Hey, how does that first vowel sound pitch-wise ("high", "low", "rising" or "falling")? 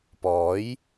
rising